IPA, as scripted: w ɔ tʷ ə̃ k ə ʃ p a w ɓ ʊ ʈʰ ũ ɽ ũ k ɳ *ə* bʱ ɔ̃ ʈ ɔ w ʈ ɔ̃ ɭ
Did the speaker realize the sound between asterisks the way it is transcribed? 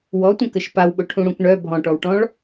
no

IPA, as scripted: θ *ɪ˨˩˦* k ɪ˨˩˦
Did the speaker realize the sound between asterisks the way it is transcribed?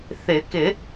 yes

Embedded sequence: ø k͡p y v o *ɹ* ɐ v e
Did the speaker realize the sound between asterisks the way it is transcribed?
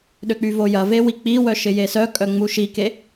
no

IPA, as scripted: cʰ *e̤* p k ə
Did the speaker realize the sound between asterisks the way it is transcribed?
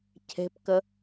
yes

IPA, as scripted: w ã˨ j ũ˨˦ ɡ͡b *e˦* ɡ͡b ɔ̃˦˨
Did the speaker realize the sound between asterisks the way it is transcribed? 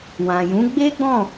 yes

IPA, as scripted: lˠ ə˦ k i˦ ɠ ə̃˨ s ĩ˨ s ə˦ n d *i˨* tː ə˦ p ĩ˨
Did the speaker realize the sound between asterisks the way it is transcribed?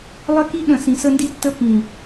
no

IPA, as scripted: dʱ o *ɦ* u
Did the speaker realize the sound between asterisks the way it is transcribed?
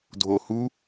no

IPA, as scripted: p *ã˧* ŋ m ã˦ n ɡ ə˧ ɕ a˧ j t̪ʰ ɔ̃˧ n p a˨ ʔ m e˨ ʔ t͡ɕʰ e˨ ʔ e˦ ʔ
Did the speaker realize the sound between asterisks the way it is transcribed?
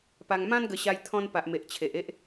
no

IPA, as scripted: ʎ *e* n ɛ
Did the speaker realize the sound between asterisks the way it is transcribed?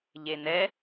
yes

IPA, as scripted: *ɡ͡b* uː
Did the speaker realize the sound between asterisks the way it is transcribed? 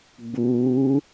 yes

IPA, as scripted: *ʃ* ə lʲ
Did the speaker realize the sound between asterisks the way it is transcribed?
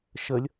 yes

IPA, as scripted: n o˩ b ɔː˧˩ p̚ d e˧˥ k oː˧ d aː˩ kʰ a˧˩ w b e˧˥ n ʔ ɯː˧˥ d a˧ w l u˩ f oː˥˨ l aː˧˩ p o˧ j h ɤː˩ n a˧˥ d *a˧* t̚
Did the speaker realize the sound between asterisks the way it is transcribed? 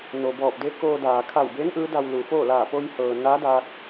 yes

